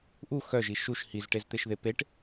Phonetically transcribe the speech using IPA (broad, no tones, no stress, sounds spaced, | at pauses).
ʔ u x œ ʒ i ʃ u ʃ h i z ʈ e z t̪ e ʃ ð e p e ʈ